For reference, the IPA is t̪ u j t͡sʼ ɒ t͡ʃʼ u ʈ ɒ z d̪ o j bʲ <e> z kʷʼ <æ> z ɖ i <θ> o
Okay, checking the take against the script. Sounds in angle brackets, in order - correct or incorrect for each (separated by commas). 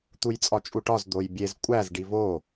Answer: correct, correct, incorrect